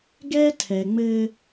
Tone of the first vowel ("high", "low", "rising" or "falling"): high